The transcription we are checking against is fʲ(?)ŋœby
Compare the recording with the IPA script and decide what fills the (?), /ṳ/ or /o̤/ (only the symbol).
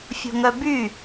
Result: o̤